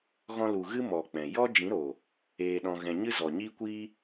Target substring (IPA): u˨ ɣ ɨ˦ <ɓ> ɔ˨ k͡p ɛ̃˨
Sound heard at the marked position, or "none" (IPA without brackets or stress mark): m